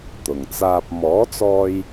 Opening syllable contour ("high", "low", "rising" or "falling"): low